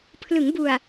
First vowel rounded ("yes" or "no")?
no